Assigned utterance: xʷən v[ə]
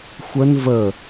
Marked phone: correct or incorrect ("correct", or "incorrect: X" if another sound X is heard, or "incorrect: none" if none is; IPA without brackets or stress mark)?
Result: correct